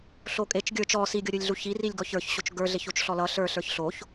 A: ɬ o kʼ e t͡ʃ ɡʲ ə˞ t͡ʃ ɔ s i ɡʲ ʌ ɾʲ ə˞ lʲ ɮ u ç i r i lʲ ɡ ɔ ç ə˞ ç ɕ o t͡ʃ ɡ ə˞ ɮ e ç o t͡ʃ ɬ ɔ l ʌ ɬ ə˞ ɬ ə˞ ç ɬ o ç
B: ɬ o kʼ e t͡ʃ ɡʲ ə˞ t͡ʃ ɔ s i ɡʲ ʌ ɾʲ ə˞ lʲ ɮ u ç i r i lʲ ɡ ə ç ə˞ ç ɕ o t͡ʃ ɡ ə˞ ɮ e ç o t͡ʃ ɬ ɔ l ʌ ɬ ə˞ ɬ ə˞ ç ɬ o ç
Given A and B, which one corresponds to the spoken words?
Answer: A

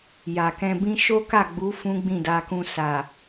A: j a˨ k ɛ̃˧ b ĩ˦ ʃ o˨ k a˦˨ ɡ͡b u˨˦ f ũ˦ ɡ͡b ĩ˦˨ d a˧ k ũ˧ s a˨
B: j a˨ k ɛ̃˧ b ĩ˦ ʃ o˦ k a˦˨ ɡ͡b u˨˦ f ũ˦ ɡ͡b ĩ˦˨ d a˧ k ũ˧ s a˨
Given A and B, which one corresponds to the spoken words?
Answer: B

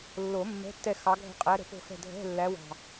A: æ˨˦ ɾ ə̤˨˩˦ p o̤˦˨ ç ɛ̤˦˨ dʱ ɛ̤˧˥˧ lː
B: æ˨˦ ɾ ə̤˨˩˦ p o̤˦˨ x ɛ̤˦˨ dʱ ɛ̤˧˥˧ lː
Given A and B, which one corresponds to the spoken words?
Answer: B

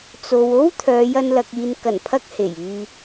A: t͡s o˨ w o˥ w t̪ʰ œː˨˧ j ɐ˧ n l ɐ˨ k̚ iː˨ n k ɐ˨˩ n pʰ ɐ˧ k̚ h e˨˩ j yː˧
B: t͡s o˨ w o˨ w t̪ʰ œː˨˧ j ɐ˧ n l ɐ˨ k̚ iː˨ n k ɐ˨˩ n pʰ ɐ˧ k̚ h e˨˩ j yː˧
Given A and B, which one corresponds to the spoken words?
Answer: A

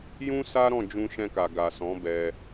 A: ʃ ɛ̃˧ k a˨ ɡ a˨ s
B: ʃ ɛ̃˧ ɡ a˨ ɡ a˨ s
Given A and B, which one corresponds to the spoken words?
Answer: A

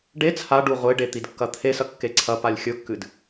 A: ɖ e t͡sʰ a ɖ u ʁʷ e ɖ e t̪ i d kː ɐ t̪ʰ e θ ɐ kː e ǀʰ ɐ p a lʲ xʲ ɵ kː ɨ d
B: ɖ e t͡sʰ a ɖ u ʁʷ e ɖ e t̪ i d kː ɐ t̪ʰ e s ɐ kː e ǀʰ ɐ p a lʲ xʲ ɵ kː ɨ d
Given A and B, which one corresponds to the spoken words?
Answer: B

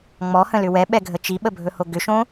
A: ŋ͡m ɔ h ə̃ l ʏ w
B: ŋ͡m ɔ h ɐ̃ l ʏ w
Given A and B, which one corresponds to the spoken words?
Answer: A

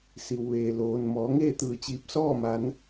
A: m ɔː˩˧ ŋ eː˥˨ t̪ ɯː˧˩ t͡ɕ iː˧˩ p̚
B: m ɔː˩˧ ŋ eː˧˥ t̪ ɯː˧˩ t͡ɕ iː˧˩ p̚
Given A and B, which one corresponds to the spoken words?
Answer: A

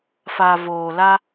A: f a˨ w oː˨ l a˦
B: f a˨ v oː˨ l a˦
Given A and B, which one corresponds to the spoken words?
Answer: B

